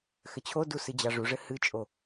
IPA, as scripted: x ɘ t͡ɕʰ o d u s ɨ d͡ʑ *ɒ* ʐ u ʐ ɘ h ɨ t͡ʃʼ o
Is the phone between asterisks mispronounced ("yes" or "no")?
yes